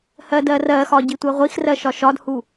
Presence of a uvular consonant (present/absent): present